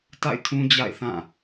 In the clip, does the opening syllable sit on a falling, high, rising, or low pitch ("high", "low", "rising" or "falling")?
falling